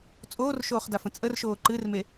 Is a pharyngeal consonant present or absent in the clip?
absent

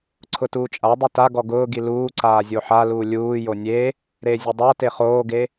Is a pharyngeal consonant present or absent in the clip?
present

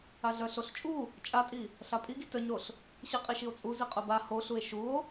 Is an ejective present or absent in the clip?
present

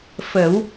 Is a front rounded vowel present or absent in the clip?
absent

